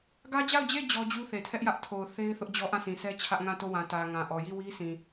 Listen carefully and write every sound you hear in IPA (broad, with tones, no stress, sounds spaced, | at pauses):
ɡ ä˦ d͡ʑ a˦˨ ʊ̯ d͡ʑ e˦˨ d͡ʑ ɔ˦ d͡ʑ u˦ θ e˨ tʰ ɛ˦ ʔ j ä˦ ʔ tʰ o˨ ʊ̯ θ e˦ ɪ̯ θ ʊ˦ ʔ d͡ʑ ɔ˦ ʔ ã˦˨ s ĩ˨ s ɛ˦ t͡ɕʰ ä˦ ʔ ŋ ã˦˨ t o˦˨ w ã˨ t ä˨ ŋ ã˨ ʔ ɔ˨ j i˦˨ w i˦ s ĩ˨